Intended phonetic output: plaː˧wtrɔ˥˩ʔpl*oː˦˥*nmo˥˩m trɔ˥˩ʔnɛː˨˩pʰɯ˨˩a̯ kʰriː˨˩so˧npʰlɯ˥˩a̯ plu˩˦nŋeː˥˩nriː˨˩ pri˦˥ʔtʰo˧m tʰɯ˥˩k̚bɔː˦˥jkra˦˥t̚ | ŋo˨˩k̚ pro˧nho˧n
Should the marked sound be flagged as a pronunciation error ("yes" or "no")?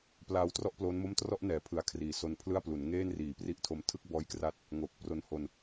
no